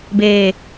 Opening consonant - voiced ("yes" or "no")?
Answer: yes